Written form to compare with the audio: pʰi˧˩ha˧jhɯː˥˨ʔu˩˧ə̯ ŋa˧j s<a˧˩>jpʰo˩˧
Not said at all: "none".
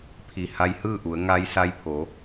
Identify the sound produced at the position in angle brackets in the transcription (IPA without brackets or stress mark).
a˧